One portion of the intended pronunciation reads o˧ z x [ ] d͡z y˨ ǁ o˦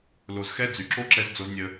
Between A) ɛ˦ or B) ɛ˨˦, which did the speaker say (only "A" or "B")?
A